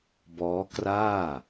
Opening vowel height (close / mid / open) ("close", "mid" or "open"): mid